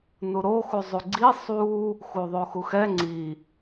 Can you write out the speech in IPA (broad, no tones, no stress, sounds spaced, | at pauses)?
n u ɾ o x u zˤ u ɡ͡ǀ i sˤ u | x u ðˤ o x u x ɛ ŋ͡ǀ i